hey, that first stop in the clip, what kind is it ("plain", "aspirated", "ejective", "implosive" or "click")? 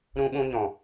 implosive